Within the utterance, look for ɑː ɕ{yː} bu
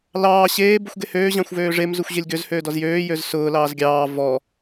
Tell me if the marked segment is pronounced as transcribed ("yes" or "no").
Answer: no